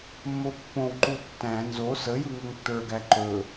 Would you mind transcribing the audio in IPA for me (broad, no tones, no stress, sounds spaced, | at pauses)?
mː o pː õ w ǃ u tː æ̃ n z o s ə j ɯ ŋ ɵ ŋ tː ə˞ ɡ æ ǃ ɵ